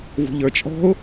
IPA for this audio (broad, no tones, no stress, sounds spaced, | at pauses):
v ṳ ʎ ə˞ t͡ʃʼ ɔ̤ ʊ̯